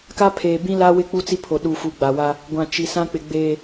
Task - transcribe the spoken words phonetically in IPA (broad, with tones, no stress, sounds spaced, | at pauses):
k a˦ pʰ eː˨ b ĩ˦ l a˦ w ɪ˦ k͡p u˦ t͡s i˦ pʰ o˨ ɗ u˨ f u˨ ɡ͡b a˨ w a˦ | ɡʷ ã˨ t͡ʃ i˨ s ã˦ k͡p ɪ˨ ɡ͡b eː˨